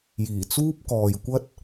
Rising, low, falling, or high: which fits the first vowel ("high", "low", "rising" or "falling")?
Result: low